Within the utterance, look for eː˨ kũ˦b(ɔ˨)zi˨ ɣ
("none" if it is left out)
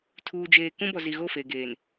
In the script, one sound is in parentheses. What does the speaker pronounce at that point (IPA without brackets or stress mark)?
ɔ˨